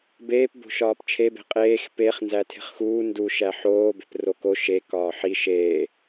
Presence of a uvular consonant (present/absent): present